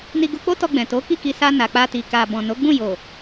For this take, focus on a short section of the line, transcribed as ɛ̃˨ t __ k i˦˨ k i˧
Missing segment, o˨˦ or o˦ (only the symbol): o˨˦